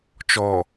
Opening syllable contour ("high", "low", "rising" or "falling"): low